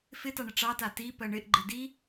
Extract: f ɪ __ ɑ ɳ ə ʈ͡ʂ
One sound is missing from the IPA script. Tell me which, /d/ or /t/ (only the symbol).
t